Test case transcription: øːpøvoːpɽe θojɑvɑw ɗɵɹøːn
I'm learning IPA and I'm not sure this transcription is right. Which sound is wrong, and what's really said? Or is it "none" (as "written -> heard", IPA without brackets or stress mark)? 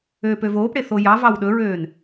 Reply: none